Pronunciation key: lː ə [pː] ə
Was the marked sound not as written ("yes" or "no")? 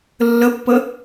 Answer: no